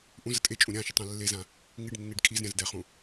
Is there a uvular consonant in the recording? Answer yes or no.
yes